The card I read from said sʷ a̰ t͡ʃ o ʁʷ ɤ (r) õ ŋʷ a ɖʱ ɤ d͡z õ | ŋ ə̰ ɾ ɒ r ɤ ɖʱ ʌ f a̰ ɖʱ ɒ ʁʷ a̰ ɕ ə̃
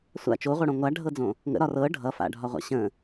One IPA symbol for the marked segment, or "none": ɽ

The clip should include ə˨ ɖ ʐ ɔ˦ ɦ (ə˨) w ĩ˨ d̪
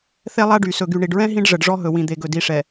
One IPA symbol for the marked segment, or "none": ɵ˨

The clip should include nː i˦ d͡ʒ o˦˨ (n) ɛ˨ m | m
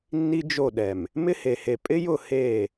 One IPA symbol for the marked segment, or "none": ɗ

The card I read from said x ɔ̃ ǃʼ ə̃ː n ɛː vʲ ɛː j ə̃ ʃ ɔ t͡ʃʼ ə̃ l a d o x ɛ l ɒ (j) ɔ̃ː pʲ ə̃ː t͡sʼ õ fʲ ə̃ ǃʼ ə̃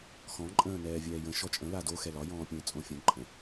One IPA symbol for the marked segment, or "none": j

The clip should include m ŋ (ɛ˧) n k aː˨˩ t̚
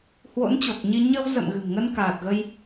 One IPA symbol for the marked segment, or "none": ə˧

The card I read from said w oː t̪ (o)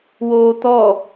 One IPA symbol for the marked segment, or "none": ɔ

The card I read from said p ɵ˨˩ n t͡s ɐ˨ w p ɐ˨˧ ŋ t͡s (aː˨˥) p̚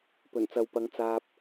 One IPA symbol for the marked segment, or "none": aː˨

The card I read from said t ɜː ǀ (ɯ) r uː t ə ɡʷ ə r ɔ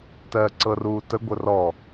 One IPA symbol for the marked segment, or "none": ɤ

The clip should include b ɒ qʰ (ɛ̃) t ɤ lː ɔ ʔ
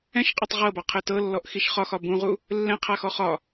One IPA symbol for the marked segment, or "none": ɛ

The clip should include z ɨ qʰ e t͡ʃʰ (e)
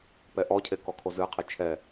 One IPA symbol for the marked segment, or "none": ɛ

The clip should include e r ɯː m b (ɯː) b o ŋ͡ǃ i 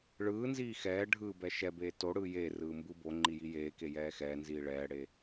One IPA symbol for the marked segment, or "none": ɯ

